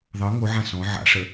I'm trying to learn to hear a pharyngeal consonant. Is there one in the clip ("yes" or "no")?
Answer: yes